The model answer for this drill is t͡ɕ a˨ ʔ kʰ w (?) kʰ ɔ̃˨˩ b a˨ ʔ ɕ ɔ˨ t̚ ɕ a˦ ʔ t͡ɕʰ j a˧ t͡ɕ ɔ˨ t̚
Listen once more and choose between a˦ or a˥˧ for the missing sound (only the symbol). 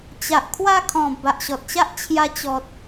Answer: a˥˧